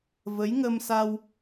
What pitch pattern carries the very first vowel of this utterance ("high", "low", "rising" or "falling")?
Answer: rising